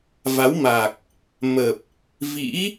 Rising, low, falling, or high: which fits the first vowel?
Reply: rising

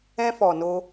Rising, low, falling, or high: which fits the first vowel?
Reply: high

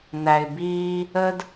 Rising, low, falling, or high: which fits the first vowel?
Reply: low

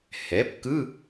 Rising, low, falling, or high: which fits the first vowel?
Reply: rising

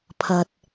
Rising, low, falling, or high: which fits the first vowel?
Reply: low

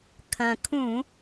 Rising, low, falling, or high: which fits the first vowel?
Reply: low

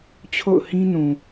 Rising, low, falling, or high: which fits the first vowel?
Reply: falling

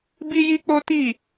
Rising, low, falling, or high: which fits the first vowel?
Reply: high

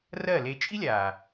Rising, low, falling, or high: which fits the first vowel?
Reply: falling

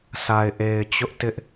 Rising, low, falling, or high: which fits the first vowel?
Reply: low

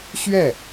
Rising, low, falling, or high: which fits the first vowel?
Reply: falling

